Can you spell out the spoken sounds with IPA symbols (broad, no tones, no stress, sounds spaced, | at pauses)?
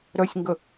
ɾ œ sʲ ŋ ɡ ə